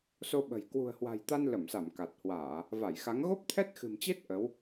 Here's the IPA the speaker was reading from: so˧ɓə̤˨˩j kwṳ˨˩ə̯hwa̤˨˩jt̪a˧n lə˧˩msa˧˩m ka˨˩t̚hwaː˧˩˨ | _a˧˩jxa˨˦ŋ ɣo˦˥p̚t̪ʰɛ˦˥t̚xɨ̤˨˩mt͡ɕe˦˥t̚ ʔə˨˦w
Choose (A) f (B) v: B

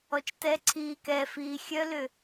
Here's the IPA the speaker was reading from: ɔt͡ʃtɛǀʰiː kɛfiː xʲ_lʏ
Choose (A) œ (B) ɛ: A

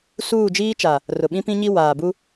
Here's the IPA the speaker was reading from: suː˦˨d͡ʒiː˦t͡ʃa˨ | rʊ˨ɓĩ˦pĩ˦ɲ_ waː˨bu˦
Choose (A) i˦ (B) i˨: A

